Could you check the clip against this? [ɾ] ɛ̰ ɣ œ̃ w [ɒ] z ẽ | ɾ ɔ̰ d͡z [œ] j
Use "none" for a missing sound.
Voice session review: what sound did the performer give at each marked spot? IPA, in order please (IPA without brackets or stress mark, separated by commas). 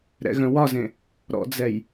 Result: ɾ, ɒ, ɛ